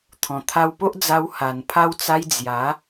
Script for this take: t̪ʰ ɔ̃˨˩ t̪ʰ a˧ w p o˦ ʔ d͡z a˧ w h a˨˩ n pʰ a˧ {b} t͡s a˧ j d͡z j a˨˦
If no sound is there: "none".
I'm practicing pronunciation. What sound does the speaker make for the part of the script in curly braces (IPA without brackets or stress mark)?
w